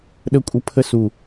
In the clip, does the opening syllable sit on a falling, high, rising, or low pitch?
high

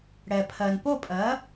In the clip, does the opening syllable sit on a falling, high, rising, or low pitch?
low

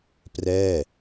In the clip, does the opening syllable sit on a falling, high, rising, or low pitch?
falling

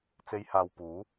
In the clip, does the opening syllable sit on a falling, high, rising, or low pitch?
high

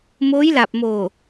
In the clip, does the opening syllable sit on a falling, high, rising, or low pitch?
rising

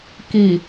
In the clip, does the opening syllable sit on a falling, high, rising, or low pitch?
low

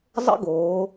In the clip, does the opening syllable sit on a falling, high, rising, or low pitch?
high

